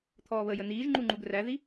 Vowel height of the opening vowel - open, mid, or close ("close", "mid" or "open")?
mid